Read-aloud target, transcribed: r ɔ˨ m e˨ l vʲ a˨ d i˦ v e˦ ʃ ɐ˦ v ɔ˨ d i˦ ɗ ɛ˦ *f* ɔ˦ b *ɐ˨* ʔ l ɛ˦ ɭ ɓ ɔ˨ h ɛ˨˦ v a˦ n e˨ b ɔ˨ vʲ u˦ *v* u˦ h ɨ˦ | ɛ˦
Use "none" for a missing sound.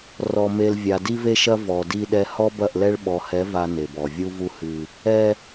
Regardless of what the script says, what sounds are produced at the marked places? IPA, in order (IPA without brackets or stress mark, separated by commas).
h, ɐ˦˨, v